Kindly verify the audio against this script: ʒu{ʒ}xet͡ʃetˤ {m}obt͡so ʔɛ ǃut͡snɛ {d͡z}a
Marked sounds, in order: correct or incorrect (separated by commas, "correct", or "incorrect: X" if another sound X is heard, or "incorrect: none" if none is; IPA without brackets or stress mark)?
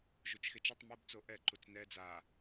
incorrect: t͡ʃ, correct, correct